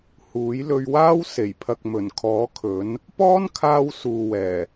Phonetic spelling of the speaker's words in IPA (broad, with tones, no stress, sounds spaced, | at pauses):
h uː˨˥ j l ɵ˧ ɥ w aː˥ w s e˨˩ j pʰ ɐ˨ k̚ m ɵ˨˩ n kʰ ɔː˨˥ kʰ ɵ˨˥ n | p ɔː˥ n kʰ aː˧ w s uː˨ w ɛː˨˩